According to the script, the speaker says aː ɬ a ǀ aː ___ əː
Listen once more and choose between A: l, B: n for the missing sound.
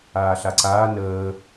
B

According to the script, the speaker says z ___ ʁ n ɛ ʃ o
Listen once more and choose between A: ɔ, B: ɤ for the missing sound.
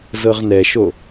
B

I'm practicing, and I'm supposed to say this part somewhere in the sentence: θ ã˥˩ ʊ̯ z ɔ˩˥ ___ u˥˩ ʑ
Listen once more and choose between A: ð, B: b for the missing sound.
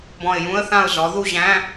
A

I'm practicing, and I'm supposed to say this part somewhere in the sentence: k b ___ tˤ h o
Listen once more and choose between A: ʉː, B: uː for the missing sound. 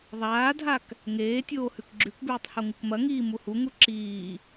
A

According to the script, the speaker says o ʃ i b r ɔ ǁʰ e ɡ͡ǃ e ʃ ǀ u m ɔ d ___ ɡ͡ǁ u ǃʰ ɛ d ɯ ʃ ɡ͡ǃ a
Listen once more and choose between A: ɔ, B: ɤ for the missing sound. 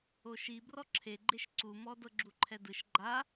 B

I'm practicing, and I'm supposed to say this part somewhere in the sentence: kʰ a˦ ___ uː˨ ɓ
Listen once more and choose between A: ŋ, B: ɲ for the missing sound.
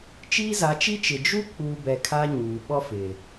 B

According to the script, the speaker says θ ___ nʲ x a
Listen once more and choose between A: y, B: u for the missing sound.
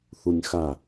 B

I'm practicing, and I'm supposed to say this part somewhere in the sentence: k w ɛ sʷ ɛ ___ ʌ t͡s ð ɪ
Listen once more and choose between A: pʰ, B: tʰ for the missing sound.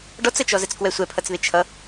A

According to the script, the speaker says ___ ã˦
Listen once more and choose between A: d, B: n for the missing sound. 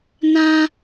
B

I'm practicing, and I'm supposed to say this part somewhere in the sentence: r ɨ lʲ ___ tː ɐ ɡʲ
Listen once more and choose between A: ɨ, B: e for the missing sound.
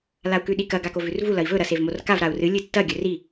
A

